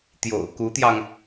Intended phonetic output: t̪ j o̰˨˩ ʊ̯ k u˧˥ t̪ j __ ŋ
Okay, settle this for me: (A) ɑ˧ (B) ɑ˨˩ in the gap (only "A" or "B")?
A